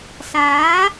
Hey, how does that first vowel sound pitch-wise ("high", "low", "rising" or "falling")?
rising